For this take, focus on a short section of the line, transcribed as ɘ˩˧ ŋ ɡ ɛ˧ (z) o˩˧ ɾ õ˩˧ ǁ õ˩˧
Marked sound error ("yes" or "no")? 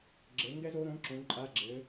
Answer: no